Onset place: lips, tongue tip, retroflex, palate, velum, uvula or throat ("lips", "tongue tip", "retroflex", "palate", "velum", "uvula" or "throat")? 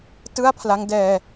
tongue tip